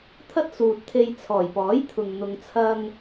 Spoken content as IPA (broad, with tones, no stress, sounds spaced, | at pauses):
t̪ʰ ɐ˥ t̚ s uː˨ t̚ t̪ʰ e˧ j t͡sʰ ɔː˨˩ j p ɔː˨˥ j t̪ʰ ʊ˨ ŋ n̪ ʊ˧ ŋ t͡sʰ ɐ˥ ŋ